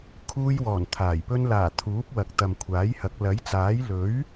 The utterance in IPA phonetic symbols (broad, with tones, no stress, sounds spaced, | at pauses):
kʰ uː˧ j w ɔː˨˩ n t̪ʰ aː˨˩ j p ɵ˧ n l aː˨˩ t̪ʰ uː˨˥ p̚ w ɐ˨ k̚ t̪ ɐ˨ m kʷʰ aː˨˥ j h ɐ˨˥ k̚ l ɐ˨˥ j t͡s aː˨˥ j l ɵ˨˥ ɥ